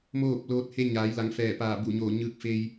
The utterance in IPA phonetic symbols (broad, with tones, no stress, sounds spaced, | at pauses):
m oː˥˨ p̚ l oː˧ t̚ h e˧ ɲ aː˩˧ j l a˩˧ ŋ f ɛː˧˩ p aː˧˩ b u˧˩ ɲ oː˧˩ ɲ ɯː˧ k̚ f eː˧ j